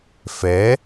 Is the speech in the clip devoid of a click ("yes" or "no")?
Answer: yes